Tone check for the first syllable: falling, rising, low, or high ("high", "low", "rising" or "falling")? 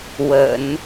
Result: low